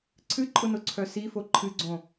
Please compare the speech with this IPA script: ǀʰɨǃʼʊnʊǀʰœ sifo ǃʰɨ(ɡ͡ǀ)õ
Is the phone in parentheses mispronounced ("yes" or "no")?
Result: no